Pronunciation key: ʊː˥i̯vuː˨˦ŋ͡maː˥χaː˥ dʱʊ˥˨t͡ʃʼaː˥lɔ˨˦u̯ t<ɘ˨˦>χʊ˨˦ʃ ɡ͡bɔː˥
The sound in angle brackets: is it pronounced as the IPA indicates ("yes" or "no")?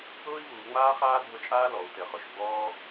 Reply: yes